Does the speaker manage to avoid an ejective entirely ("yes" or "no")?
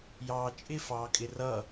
no